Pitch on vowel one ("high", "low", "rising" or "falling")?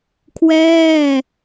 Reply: falling